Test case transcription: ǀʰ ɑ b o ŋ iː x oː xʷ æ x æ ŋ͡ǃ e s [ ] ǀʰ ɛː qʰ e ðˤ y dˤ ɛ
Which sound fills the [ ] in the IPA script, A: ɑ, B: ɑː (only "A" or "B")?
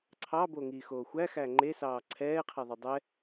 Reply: B